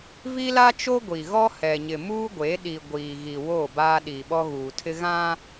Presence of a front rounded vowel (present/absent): absent